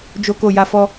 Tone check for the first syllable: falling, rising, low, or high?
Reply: high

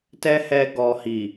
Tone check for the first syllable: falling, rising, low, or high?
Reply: high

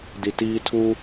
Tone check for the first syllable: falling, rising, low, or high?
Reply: low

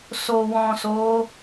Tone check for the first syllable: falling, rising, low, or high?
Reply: low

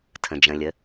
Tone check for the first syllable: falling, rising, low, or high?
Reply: low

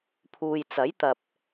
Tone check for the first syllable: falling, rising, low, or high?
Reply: low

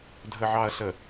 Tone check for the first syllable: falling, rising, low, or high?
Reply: low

